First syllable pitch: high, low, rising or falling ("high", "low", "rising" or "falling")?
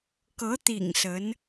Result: rising